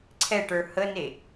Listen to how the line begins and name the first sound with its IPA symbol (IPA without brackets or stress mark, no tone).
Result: ǀʰ